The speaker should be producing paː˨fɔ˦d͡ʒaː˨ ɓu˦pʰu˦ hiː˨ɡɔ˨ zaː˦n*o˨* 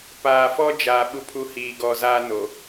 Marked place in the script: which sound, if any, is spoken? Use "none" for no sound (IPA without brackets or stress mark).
o˨